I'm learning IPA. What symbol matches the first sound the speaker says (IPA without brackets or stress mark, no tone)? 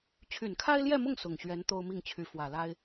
t͡ɕʰ